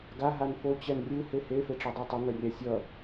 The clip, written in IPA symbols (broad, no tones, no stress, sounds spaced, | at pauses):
ɡ a ɦ a n f o t͡ɕ ɛ n rʲ ɯ h e h e f e ʈ͡ʂ e dˤ a tˤ ɯ ŋ ʌ rʲ a sʲ ʌ